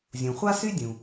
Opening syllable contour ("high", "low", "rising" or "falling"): low